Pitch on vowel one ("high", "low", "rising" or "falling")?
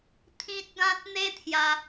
high